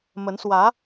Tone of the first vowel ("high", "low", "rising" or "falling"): rising